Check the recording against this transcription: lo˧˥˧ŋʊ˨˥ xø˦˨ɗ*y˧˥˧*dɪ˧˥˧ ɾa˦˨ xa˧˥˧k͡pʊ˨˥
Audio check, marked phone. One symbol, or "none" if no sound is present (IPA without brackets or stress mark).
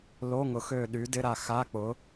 y˨˥